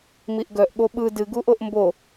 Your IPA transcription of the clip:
m i ʔ ɡ œ ʔ ɠ o ɓ ɯ d ɨ ɡ u ʔ o ʔ m b o

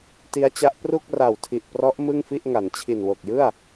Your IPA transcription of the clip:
t i˦˥ a̯ t͡ɕ a˦˥ ʔ p r u˥˩ k̚ r a˨˩ w tʰ i˨˩ ʔ p r ɔ˦˥ ʔ m ɯ˥˩ ŋ f i˥˩ ʔ ŋ a˩˦ n t͡ɕʰ i˨˩ n w o˨˩ k̚ j ɯ˥˩ a̯

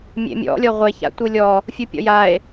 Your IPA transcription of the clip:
mʲ ḛ mʲ ɔ̰ lʲ ɔ ʁʷ e ç a̰ tʷ ɯ lʲ ɔ | fʲ ɯ pʲ ɔ̰ j a e̯

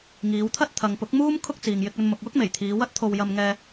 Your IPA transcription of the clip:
ŋ iː˨˧ w t̪ʰ ɐ˥ t̚ t̪ʰ ɐ˨ ŋ p ʊ˨˥ k̚ m uː˥ m kʰ ʊ˥ k̚ t͡s iː˨ ŋ j ɪ˧ k̚ ɵ˧ n m ʊ˨ k̚ w ʊ˥ k̚ m e˨˩ j t̪ʰ iː˨˧ w ɐ˥ t̚ t̪ʰ o˧ w j ɐ˧ m ŋ ɛː˧

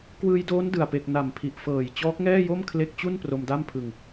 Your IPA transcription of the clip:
k w ɯː˧ j d oː˦˥ n d ɯ˨˩ a̯ p e˨˩ k̚ n a˨˩ m pʰ i˨˩ ʔ f ɤː˨˩ j t͡ɕ ɔː˦˥ k̚ ŋ ɛː˥˩ j o˥˩ m kʰ l e˦˥ k̚ t͡ɕ u˥˩ n p r o˧ m d a˥˩ m pʰ ɯ˧ ŋ

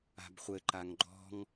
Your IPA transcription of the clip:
a̤ b χʷ ɘ ǃ a ŋ ɡ͡ǃ ɔ̤ ŋ

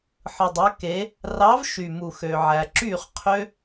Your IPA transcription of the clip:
ħ ɯ˩ dˤ ø˩˧ k e˩˧ | r ɑ˨˥ v ʃ y˩ m u˩ x ø˩ ʕ æ˩ ǁ y˥˩ χ qʰ ø˦˥

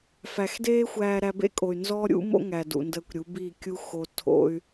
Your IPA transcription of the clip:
f æ˨ x d eː˦ xʷ æː˧ ɾ æ˧ b ḛ˦ kʼ o˨ y̯ n z ɔ˦ ɾʲ ṵ˦ m o̰˦ ŋ æ˨ d ṵ˨ n d əː˧ kʷ ɾʲ u˨˦ b i˦˨ kʲ u˦ x o˧ tʰ o̰˦ y̯

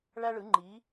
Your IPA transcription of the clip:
ɭ æ˥ ɭ ɯ˩˥ ŋ͡ǃ iː˩˥

